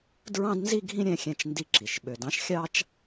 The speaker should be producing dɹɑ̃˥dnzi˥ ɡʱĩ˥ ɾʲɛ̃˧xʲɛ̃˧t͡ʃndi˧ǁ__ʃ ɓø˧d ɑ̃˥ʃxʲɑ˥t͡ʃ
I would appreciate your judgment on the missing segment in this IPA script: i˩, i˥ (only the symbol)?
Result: i˩